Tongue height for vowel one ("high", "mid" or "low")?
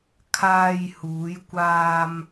low